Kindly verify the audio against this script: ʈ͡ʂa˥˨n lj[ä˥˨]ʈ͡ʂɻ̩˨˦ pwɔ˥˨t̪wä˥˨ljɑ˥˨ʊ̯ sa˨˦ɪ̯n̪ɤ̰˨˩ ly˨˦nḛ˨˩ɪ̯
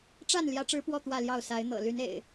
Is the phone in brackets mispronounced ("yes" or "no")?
yes